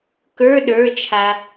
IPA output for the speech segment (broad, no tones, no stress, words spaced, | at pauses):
kə˞ ɗə˞t͡ʃʰa